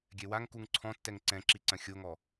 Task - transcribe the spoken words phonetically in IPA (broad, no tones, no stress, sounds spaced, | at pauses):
ɡʲ ɛ w a ŋ k u ŋ ǀʰ ɔ̃ tː ɛ ŋ ǀ ɛ̃ ǁ i ǀ ɐ̃ xʲ o ŋ ɔ